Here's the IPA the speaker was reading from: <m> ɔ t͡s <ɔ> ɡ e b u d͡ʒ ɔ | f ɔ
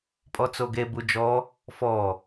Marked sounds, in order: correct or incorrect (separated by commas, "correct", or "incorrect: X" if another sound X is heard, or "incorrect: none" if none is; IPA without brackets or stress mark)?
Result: incorrect: pʼ, incorrect: o